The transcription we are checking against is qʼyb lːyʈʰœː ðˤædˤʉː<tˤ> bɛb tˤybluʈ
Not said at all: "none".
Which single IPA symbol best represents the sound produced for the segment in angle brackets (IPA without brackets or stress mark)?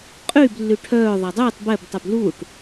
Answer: tˤ